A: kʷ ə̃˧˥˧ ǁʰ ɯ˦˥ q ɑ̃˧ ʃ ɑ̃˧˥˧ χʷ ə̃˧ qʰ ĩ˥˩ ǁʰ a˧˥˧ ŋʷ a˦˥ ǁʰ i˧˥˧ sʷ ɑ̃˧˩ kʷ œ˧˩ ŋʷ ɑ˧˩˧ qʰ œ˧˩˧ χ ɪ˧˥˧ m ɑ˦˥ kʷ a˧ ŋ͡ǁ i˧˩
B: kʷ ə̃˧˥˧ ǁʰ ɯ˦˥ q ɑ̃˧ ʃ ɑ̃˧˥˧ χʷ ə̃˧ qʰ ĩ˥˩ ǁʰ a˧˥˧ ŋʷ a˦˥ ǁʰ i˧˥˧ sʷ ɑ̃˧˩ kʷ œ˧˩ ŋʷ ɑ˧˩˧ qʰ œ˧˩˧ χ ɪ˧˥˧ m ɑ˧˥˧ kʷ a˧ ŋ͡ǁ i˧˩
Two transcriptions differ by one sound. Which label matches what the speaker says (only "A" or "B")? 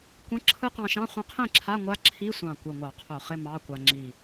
B